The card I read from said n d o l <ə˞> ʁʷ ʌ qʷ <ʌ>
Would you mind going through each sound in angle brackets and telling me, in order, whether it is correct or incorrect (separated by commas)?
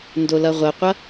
incorrect, correct